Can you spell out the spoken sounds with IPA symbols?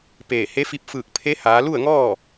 p eː˧˩ h e˧˥ f i˧˥ p̚ f ɯː˧˩ k̚ pʰ e˧˥ h aː˩˧ l u˥˨ ə̯ ŋ ɔː˥˨

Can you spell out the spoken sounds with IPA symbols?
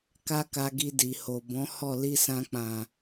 k a˦ k a˧ ɡ i˧ d i˨ h o˨ b ɔ̃˨˦ h ɔ˦˨ l i˧ s ã˧ k͡p ã˨

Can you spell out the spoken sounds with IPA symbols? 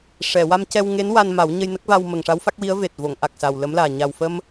ʂ ɛ˨˩˨ w a˧ m c ɛ˧ w ŋ e˧˥ n w a˧ n m a˨˩˦ w ɲ ə˧ j n ə˦˥ k̚ v a˧ w m ə˨˩ ŋ ʂ a˧˥ w f a˦˥ k̚ w i˧˥ ə̯ v e˨˩ t̚ v o˨˩˨ ŋ ʔ a˨˩ k̚ s a˨˩ w l ə˧˥ m l aː˨˩ ɲ a˨˩ w f ə˧ m

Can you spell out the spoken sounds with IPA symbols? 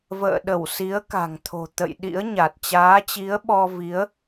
v ə̰ː˧˨ ɗ ə˧˩ w s i˨˦ ə̯ k a̤˨˩ ŋ t̪ʰ o̤˨˩ t̪ ə̰˧˨ j ɗ ḭ˧˥ ə̯ ɲ a˨˩ t̚ t͡ɕ aː˨˦ t͡ɕ i˨˦ ə̯ ɓ ɔ˧ v i˨˦ ə̯

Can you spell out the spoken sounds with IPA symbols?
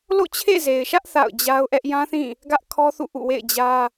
l o̰˦˨ t͡ɕʰ ḛ˦˨ z e˨ ɪ̯ ʃ ä˦ ʔ θ a̰˦˨ ʊ̯ d͡ʑ a˦ ʊ̯ ʔ ɛ˦ ʔ j ã˦ θ ĩ˦˨ | ɡ ä˦ ʔ kʰ ɔ˦ θ ṵ˦˨ ʔ ṵ˦˨ w ḛ˦˨ ɪ̯ d͡ʑ ä˦

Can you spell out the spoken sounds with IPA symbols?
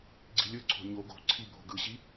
ɡ͡ǀ i̤ lʲ ɯ ǀʰ o̤ ɲ o ɡ o̤ ǀʰ i bʱ o̤ ɡ ɯ ɕ i

